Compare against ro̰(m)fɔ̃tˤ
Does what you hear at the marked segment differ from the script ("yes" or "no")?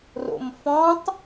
no